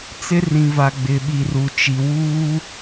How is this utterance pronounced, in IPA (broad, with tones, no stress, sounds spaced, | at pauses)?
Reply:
t͡s ɪ˦ r ĩ˨ v a˨ ɡ͡b ɪ˨ ɓ i˨ r u˨ t͡ʃ i˨ w uː˦